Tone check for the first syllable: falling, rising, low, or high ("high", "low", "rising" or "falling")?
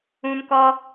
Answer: high